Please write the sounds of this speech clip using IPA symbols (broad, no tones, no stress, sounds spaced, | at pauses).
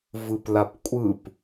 v ɯ p l a p kʷʼ ɯ p